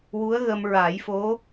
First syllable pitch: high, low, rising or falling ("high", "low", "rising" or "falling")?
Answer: rising